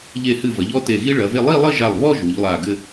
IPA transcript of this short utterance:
ʎe˧˩hɨ˧˩vɐ˩˧ʎ ɔ˥te˧˩ ɣi˥ɭɐ˩˧ve˥˧ lˠi˥˧lˠɘ˥˧ʒa˧˩lˠβɔ˥˧ ʒu˩˧ʎlˠa˧˩ɡɘ˥˧

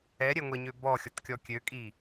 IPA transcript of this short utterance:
ɛɾʲɛŋʷɛɲø bɔxʲɔtkʲɔ kʲøkʼi

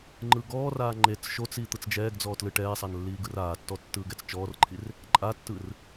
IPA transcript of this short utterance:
ŋ͡ǃɯɡɔːraː ŋ͡ǃet͡s ʃot͡s iːt̪ɯt͡sd͡ʒɛːɡd͡zɔː tlɯʈɛːsˤan lːiːɡɯraːtːɔ tːɯːɡɛt͡st͡ʃɔːrǃʰir | ǃʼatːɯr

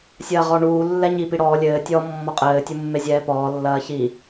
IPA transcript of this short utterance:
sʲɐːʁɔɳuː lːɛɲi piɽɔː lʲɘː tʲɔ mːɔqʼɘː tʲumːezʲɛːpɔː lːɐːçi

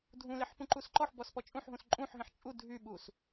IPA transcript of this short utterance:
dʱũleħpũǃus ǃɔħbɔspɔ t͡ʃʼũħɦũs ǃʼũħɦẽħ t͡ʃʼu dʱyɓus

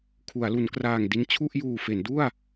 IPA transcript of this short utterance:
kʰu˩˦a̯lu˩˦nkraː˨˩ŋ di˧n t͡ɕʰu˥˩ʔjuː˨˩fe˩˦ndu˥˩a̯

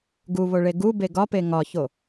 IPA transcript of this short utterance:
ɡuβoɭe ɡube ɡɒpe ŋɒço

